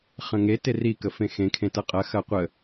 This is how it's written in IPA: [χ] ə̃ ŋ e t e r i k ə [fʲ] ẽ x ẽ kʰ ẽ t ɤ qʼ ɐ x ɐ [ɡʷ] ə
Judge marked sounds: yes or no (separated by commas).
yes, no, no